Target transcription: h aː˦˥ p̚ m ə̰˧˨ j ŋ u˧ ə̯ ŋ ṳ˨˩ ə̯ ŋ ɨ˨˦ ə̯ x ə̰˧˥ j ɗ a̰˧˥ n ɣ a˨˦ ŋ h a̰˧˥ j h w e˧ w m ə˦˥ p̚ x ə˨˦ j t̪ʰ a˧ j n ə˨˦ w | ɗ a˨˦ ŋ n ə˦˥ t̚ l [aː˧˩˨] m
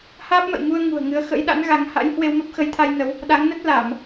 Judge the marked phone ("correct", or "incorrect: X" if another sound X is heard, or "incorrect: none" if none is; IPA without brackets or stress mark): correct